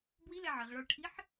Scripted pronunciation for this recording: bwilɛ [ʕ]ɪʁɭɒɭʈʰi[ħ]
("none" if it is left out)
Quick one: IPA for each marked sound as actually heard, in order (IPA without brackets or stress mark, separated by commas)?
ʕ, ħ